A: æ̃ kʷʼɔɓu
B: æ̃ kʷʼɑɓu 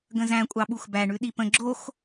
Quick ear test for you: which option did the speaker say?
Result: B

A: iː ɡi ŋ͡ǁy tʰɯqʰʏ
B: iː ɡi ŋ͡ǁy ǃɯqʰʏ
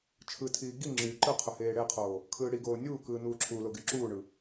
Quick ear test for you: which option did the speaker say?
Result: B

